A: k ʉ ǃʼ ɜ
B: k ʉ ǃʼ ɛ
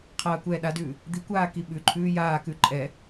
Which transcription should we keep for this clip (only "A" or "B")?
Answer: B